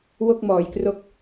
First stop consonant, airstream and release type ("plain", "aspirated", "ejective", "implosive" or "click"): plain